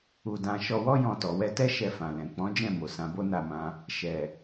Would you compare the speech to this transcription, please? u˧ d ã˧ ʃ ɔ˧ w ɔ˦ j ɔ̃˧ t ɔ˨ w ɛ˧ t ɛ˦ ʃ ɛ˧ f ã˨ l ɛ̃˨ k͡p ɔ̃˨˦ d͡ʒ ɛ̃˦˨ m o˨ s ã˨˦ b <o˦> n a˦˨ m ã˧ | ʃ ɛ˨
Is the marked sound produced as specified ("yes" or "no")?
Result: yes